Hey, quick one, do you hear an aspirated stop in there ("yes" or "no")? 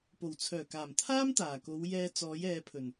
yes